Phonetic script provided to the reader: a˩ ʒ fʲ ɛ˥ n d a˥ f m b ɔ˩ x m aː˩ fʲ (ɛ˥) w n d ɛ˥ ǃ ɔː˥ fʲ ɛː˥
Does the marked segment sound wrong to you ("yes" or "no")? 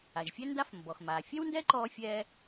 no